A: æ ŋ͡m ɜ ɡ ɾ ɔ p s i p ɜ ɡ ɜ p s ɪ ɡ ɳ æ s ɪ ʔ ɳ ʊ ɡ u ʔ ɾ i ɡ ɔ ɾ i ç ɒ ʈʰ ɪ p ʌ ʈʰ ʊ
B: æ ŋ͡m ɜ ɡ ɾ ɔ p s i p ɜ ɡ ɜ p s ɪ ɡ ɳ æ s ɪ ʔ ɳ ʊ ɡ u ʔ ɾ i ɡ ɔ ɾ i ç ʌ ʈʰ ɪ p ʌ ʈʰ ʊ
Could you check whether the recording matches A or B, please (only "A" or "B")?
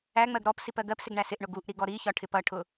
A